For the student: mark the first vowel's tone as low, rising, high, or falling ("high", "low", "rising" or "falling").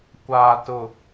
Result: low